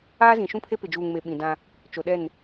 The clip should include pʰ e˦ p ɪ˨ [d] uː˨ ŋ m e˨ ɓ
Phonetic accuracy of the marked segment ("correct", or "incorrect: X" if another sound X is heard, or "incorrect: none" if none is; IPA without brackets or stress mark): incorrect: d͡ʒ